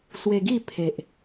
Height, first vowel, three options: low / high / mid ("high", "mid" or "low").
mid